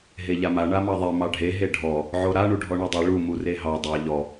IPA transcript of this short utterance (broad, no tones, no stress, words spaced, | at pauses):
ɦeʎama ɳamɑðˤe mɑɖʱe ɦeɖʱɔ | ʕoɾa ɳuɖʱɔɳodˤi ɭu mureɦɑ dˤɑ ʎɔ